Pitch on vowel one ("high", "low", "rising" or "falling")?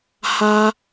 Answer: high